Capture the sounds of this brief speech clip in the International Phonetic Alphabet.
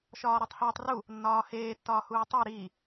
ʃ ɒː ɾ ɒ tˤ h iː tˤ r u | nː ɒː h eː tː ɒː h uː tˤ i ɾ iː

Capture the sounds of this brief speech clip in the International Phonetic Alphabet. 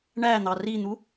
ɳ æ n̪ ɑ r i n̪ u

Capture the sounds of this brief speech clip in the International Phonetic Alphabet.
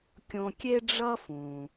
kʲ õ˧ kʲ e˥ ɖ͡ʐ ʌ˥ f ũ˩

